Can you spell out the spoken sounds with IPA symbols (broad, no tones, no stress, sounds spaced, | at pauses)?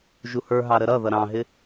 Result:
ʒ u h ə˞ ɦ ɑ ɾ ə ɾ ʌ ð ʌ ɾ ɑ̃ ɦ ɪ